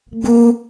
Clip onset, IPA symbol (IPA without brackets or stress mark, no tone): ɡ͡b